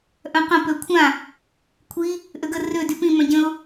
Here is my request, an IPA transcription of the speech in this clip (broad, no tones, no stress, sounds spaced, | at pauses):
ʔ œ̃ q ə̃ p ø kʷʰ ã | kʷʰ i | ʔ ø ɡ ə r ø d y p ĩ m œ̃ ɟ ə̃ ʊ̯